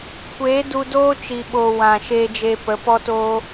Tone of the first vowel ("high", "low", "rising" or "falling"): rising